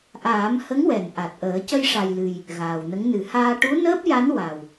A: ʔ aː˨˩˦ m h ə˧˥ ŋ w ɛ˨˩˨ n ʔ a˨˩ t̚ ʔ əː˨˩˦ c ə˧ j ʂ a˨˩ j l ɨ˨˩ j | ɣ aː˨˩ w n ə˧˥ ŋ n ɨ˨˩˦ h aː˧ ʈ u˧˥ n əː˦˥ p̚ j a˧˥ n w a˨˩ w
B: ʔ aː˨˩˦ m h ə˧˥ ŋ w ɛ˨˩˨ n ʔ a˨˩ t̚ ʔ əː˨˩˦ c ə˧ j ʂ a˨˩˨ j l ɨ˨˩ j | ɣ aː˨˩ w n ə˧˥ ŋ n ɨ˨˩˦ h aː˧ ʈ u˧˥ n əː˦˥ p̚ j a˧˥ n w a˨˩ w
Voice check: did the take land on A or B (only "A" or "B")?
A